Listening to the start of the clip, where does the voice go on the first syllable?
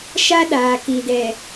high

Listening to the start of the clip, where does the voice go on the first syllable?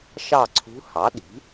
falling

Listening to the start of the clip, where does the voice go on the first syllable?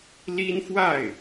high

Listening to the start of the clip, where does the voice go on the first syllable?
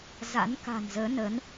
rising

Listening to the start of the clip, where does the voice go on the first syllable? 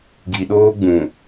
low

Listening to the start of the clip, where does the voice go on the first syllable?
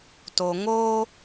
low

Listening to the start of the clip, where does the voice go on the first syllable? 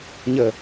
falling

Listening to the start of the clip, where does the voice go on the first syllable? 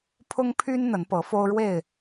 high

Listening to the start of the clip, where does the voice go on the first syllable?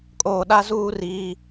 low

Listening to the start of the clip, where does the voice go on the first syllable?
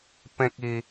high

